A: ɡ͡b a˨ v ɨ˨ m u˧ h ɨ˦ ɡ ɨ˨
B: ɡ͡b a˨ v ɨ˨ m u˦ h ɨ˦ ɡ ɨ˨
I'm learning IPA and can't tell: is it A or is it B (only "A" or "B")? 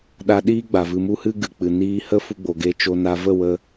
A